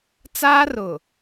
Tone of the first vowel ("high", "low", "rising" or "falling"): high